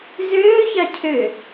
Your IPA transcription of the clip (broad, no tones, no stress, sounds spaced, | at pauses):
z øː ç ɑ cʰ ø